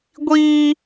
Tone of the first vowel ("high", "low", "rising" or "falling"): high